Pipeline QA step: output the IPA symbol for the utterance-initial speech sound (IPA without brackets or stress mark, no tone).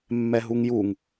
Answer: mː